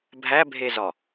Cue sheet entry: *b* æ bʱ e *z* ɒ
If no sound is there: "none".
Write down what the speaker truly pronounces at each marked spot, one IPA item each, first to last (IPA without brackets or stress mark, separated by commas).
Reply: bʱ, z